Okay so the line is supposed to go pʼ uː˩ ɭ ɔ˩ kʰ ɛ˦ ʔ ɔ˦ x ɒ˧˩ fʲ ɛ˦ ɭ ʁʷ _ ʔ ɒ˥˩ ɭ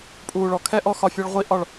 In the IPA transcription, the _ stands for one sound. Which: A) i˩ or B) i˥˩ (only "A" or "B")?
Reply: B